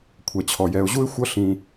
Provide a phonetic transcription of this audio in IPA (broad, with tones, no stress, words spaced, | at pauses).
kʷʰɛ˩t͡ɕʰɔ˩ jɛ˩ʊ̯ʑu˥ɪ̯ xʷʌ˥ ɬĩ˩